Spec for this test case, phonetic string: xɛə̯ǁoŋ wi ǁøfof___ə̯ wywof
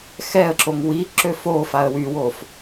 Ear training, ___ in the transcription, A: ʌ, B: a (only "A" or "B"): B